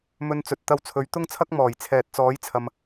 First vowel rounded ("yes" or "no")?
yes